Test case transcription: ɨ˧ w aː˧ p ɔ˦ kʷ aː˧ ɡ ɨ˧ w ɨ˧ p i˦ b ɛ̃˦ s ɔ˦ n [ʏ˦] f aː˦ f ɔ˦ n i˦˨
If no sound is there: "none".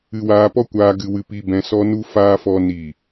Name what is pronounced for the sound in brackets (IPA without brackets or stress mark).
u˦